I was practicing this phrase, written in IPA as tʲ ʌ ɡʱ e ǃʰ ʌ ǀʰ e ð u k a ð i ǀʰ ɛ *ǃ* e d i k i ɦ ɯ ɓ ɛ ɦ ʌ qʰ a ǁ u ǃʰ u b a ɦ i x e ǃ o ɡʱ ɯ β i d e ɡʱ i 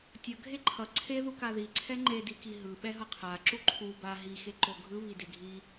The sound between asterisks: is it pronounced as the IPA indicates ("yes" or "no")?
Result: no